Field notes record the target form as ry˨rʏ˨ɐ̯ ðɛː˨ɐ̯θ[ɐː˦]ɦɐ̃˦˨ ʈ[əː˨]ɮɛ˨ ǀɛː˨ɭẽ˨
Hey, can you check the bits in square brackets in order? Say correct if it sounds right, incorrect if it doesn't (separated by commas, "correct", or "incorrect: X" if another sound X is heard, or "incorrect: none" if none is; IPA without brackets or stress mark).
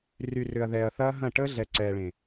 correct, incorrect: əː˦